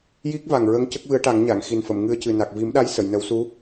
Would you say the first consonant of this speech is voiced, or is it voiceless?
voiced